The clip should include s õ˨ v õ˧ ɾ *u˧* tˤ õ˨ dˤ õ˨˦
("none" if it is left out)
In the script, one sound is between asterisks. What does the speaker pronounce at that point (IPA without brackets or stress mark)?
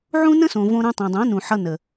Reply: ũ˧